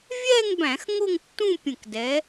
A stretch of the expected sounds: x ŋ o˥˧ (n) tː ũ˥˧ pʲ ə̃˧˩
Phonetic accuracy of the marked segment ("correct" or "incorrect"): incorrect